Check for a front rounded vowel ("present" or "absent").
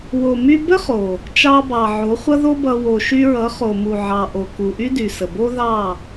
present